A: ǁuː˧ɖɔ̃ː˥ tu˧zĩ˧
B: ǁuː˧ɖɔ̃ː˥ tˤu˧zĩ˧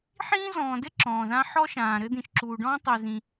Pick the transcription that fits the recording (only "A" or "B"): B